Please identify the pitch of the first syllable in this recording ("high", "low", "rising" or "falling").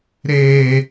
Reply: low